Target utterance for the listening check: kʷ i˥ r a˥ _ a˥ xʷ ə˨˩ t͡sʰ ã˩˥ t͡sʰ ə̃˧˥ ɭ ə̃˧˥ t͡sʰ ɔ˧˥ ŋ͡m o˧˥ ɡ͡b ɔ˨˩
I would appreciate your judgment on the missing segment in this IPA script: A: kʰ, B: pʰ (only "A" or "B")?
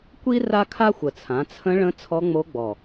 A